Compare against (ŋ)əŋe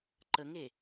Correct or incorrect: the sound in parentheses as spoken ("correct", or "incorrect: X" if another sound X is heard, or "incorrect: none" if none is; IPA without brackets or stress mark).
incorrect: ǃ